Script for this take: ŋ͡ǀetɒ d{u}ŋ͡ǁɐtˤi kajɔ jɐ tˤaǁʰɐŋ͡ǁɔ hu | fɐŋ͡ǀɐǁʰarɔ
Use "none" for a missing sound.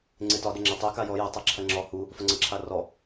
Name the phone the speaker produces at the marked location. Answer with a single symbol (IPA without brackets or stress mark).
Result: ʏ